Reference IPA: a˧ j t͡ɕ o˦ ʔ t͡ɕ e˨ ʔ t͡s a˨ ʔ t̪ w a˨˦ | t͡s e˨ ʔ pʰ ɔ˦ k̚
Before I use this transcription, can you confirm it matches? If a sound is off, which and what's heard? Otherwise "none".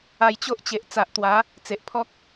none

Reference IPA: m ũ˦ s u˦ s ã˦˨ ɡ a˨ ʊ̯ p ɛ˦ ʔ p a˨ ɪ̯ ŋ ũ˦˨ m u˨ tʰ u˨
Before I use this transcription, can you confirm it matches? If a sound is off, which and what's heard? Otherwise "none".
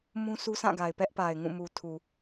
ʊ̯ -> ɪ̯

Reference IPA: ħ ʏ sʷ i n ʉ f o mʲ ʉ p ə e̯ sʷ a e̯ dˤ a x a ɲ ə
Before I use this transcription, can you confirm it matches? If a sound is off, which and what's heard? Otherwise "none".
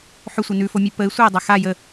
ɲ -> j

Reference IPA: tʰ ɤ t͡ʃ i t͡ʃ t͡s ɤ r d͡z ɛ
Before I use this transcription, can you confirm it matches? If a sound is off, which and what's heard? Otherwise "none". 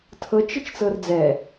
none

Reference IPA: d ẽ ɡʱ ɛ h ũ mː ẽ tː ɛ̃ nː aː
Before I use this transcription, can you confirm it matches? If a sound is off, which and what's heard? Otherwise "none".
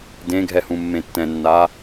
none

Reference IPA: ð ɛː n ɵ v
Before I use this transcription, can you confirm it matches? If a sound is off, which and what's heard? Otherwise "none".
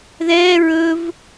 n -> ɹ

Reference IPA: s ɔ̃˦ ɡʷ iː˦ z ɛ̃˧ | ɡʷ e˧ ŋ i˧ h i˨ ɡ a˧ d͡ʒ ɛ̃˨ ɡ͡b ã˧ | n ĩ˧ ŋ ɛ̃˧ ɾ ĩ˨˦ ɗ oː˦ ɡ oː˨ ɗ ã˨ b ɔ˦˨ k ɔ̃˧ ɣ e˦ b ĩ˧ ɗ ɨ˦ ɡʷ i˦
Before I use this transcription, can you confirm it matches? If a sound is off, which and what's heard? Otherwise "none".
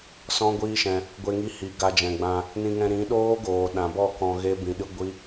z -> ʃ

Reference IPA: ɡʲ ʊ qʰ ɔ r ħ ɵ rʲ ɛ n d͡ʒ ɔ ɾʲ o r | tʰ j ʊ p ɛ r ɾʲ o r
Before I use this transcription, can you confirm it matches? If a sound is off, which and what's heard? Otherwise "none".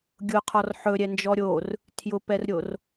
rʲ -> ɾʲ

